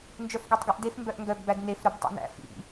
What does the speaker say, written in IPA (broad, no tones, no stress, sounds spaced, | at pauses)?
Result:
n d͡ʒ œ f ɡ œ tˤ ɡ ʉ ʔ d e f m b œ ʔ ŋ ɡ œ ɡ b æ d n e f ɾ œ b tˤ ḭ n æ̰ f ḭ